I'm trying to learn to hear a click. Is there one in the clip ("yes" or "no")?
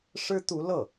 no